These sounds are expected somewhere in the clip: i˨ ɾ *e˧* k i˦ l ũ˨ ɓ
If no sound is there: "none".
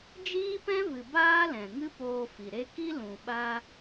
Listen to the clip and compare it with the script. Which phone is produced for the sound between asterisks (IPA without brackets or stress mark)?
e˧